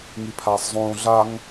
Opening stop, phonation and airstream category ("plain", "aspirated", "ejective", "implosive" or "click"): aspirated